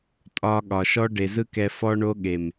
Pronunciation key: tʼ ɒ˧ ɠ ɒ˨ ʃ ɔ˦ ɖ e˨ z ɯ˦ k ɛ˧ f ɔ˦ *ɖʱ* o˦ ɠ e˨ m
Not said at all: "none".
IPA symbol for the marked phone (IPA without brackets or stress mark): ɳ